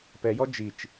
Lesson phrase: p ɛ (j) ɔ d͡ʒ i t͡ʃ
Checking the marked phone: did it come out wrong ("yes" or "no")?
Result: no